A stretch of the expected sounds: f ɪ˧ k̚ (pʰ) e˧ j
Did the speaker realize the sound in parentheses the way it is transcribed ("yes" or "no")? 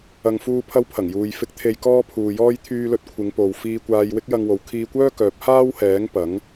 no